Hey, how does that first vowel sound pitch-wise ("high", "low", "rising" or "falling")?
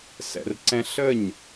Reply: low